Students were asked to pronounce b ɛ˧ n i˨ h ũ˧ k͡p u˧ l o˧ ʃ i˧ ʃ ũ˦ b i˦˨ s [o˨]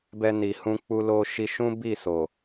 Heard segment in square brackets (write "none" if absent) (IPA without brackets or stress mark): o˨